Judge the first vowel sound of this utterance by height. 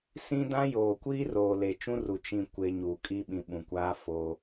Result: high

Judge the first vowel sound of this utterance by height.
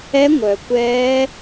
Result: mid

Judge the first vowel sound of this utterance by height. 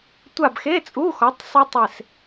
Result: low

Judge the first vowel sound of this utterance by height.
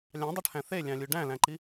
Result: low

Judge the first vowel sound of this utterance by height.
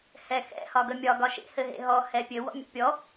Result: mid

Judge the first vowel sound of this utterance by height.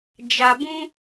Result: low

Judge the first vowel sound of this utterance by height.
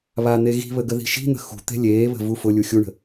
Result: low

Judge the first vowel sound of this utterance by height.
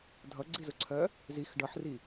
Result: mid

